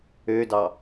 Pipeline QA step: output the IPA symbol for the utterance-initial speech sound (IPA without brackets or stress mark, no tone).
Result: ø